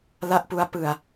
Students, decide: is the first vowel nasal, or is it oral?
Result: oral